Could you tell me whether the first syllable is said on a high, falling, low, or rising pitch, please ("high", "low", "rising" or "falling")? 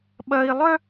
high